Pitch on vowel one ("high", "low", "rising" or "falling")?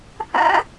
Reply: high